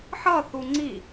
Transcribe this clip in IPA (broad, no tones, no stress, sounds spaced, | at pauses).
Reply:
ħ ʌ θ u ŋ͡ǀ i